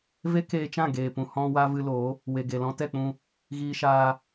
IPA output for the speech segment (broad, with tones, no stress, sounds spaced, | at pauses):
v e˦ k eː˧ t͡ʃ ã˦˨ ɡ eː˨ p ũ˨ h ɔ̃˧ w a˧ v ɨ˧ l o˨˦ | w e˨ ɡ e˨ l ɔ̃˧ t ɛ˦˨ k͡p ũ˧ | ɣ iː˧ ʃ aː˧